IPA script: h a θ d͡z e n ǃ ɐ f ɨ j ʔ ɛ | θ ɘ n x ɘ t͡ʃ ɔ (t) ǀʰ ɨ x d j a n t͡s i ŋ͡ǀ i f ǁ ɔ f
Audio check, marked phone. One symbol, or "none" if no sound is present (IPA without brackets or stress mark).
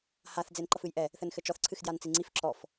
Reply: θ